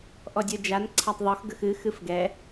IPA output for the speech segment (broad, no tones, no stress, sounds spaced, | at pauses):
ʔ ɔ dʲ ə˞ d͡ʒ a n ǀʰ a tˤ ðˤ o x ɡ ə x ɨ x ɨ f ɡ ɛ